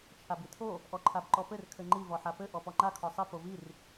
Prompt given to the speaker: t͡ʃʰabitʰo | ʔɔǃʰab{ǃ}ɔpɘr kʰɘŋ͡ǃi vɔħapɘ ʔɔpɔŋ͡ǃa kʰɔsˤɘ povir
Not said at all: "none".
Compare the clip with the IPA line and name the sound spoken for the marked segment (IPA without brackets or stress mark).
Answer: ǃ